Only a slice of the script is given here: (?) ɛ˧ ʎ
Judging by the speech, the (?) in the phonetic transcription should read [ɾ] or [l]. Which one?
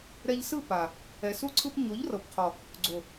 ɾ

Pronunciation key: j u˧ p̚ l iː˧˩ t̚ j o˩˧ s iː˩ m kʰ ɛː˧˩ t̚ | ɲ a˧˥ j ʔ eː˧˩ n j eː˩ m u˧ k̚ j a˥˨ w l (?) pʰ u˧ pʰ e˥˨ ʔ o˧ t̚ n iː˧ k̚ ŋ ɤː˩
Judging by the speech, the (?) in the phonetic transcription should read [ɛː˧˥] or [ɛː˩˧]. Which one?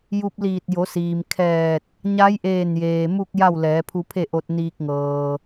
ɛː˩˧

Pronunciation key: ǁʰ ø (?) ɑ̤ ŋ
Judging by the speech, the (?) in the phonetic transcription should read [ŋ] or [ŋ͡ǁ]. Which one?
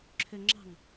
ŋ͡ǁ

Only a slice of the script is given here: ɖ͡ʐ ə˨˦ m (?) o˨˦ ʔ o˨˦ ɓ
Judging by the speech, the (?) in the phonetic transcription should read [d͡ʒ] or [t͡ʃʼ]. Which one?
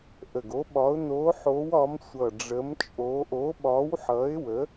t͡ʃʼ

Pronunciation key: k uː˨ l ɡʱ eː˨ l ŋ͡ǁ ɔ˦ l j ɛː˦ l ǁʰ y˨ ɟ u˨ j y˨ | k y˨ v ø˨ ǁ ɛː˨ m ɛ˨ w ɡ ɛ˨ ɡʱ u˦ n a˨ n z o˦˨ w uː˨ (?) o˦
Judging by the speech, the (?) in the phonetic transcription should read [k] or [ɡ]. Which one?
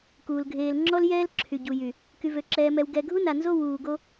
ɡ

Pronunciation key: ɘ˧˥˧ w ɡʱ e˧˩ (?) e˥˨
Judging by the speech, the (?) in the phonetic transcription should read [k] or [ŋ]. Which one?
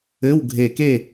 k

